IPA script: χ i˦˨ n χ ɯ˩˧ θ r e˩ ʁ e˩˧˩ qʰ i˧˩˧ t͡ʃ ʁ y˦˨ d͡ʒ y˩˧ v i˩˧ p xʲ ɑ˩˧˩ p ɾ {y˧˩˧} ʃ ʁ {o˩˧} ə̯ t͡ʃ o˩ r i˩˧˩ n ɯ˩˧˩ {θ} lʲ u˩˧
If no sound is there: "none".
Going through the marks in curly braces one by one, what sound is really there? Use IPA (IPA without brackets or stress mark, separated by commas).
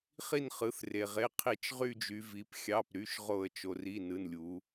y˩˧˩, o˧˩˧, n